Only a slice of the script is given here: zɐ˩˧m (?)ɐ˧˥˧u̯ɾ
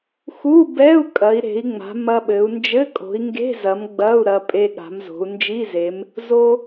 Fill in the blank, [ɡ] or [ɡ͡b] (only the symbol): ɡ͡b